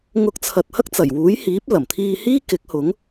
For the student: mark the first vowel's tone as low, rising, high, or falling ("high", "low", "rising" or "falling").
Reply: rising